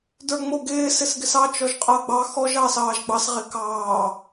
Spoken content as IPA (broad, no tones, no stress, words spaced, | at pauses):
də˞ŋ͡moɡɪː sɪsɡɪsɑ t͡ʃɔʒqʼəːɡ͡bɑ xɔʒ ɑːsɑːʒɡ͡bɑs ʁɪkɑː